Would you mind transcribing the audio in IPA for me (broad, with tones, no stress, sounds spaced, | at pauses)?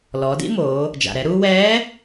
l ɔː˩˧ d ḭ˥ m oː˩˧ | d͡ʒ a̰˩ ɾ ɛ˩˧ ɾ uː˧ w ɛː˧˥